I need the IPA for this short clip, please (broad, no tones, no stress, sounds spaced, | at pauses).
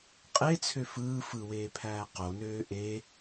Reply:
qʼ e t͡sʰ ø f ɯː f ɯ w eː pʰ æː q o n øː ʔ e